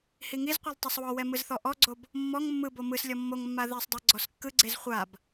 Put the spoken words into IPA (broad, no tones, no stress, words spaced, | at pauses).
hiŋizqʷilˠ tˤɯsˤwɔwɛ mɯzθɔʔɔɡ͡ǀob | mːɔŋ mːɯbo mɯslʲɔ mːoŋmːa ðisˤdˤɛ ɡ͡ǀɔskːɯɡ͡ǀez χʷab